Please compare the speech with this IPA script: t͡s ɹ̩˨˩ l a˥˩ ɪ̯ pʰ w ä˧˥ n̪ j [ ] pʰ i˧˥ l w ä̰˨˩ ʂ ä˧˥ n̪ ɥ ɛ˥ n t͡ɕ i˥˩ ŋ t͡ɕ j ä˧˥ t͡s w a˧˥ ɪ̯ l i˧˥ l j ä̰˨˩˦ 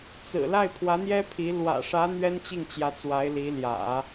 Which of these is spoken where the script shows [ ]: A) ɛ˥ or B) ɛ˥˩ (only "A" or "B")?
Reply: A